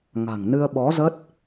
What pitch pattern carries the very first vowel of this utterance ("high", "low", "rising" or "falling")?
low